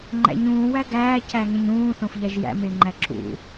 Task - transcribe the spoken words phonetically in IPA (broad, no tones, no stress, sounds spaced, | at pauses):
ŋ͡ǃ æ̰ ɲ ũː w æ ɡ æː c æ ŋ ẽ ɲ ũː θ õ f ʎ æ ʒ j æ̰ m e ŋ͡ǃ æ ǁ ṵ